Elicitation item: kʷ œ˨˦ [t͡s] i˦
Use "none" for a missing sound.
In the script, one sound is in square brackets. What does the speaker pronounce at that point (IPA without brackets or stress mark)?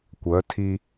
tʰ